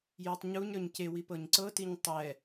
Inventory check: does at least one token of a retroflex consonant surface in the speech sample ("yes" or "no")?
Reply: no